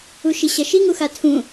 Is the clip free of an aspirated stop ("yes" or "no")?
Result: no